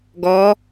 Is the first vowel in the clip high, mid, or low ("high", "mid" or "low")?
mid